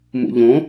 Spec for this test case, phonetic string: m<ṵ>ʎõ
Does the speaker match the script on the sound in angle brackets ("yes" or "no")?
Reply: yes